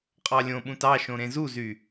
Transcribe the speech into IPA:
qʼ ɑ lʲ õ ɓ ũ t ɑ ʃ õ ɾ ẽ z u z y

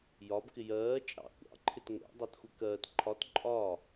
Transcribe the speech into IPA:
j ɒ b k ɪ j ɜː t͡ʃʼ ɑ̰ kʷ ɑ̰ ǃʰ ɪ t ŋʷ ɛ̰ dˤ ɑ t xʷ ɛ k ɜ t ǃʰ ɒ t ǃʼ ɒ

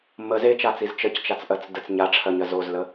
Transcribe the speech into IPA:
m ə z e t͡ʃ a t͡s i z t͡ʃ ə c t͡ʃ a t͡s ʔ ɜ t͡s d ə t͡s ɲ a ʈ͡ʂʰ ɜ ɲ ɜ z o z l ə

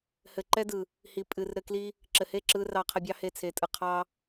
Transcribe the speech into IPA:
h ɘ˨ ǃ ɛ˦ d ɯ˨ | h i˨ pʼ ɨ˨ r ɾ ɘ˧ k l i˦ | ǁ ɘ˨ h e˦˨ ǁ ɯ˧ r ɑ˧ qʰ ɘ˧ bʲ ɑ˦ h e˧ t͡sʰ e˨ tʼ ɯ˨ qʰ ɑ˦

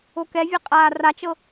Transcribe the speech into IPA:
o k ɛ vʲ ɛ qʼ aː r a t͡ʃ ɤ

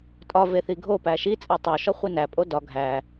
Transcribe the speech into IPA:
tʼ ɒ v e θ i ɡʱ o p æ ʃ i t͡sʼ æ tˤ o ʃ ɒ χʷ i n æ pʼ o d ɒ ɡʱ æ

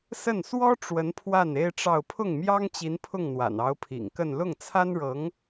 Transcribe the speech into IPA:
s ə˥˩ n s w ɔ˥ ʈ͡ʂ w ə˧˥ n pʰ w a˥˩ n e˥ ɪ̯ ʈ͡ʂ ɑ˥˧ ʊ̯ pʰ ʊ˥˩ ŋ m j ɑ˥ ŋ t͡ɕ i˧˥ n pʰ ʊ˥˩ ŋ n̪ w a̰˨˩ n ɑ˧˥ ʊ̯ pʰ ḭ˨˩ ŋ k ə˥˧ n l ʊ˥˩ ŋ t͡sʰ a˥ n ɻ ɤ˧˥ ŋ

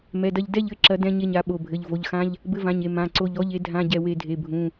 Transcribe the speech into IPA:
m ɛ˩˧˩ d ɐ˦˨ ʎ d ɛ˦˨ ʎ ɘ˦˨ ǁ ɐ˨˥ d ɛ̃˧˥˧ ɲ e˦˨ ɲ a˨˥ ɓ o˩˧˩ bʱ ɘ˩˧˩ ʎ v o˩˧˩ ʎ x ã˧˥˧ ʎ | b ɘ˧˥˧ v ã˩˧˩ ɲ e˦˨ m ã˩˧˩ ǀ o˦˨ ʎ ɔ˧˥˧ ʎ e˨˥ dʱ ã˧˥˧ ɟ ɛ˦˨ w e˦˨ dʱ e˩˧˩ bʱ ũ˩˧˩

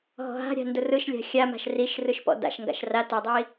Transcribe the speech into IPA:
ɦ ɔ̤ ɦ a̤ ɾʲ a̤ n d ʊ r ɯ ʃ lʲ a̤ xʲ a m a̤ ʃ r i ʃ r ɯ ʃ p ɔ̰ d a̰ ʃ ŋ ɡ a̰ ʃ r a t a dˤ i

